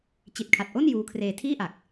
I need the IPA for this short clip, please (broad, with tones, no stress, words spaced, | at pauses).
t͡ɕi˨˩t̚kʰa˨˩t̚ʔo˥˩n juː˦˥kʰreː˧tʰiː˥˩ʔa˨˩k̚